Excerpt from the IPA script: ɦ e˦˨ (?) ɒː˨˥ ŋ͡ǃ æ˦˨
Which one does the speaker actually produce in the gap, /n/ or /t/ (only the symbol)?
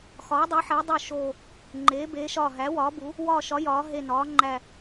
n